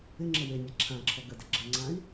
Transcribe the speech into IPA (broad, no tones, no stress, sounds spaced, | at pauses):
ɪ ŋ͡ǁ ə w e nʲ a ǁʰ ã ǁʰ ɔ ɡ ə d ə ɡ͡ǁ ə ŋ͡ǀ ã i̯